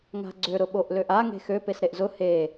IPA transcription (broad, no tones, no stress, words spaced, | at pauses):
ŋa̤ɡ͡ǀø ɾʊɓoʔløʔa ŋe̤xø pesɾeʔzʊ he